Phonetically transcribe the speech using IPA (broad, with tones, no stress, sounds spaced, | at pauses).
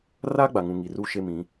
r a˦ ɡ͡b a˨ ŋ ũ˨ ŋ i˨ r uː˦ ʃ e˦ m ĩ˨˦